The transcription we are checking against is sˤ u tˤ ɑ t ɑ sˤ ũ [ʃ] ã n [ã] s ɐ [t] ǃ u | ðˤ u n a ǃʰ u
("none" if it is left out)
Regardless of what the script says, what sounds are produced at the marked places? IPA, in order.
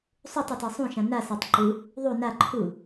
ʃ, a, tˤ

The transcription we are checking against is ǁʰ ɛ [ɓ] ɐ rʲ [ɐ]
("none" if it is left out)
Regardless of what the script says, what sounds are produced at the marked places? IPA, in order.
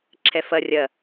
f, ɐ

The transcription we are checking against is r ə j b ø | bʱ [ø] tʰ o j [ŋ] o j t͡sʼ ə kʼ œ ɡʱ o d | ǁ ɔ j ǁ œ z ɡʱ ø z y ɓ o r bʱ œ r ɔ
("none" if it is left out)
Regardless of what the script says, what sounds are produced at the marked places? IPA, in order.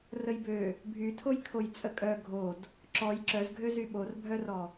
y, kʰ

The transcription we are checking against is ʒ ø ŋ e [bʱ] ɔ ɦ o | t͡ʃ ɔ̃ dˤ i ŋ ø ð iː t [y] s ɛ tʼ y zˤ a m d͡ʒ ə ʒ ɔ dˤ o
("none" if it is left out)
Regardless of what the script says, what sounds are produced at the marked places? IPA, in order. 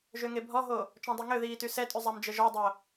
bʱ, y

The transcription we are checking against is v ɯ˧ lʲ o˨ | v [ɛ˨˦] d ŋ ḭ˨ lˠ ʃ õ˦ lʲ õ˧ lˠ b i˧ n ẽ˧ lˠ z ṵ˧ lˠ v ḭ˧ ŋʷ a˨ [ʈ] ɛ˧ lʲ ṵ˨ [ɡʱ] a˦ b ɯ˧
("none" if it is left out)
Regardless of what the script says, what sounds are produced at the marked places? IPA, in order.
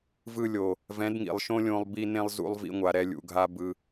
ɛ̃˨˦, ɾ, ɡʱ

